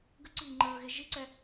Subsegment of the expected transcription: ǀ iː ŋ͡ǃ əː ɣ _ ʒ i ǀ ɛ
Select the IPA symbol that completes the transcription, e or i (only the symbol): e